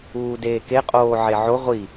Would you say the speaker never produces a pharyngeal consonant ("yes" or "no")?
no